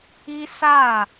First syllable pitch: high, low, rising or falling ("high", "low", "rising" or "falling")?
high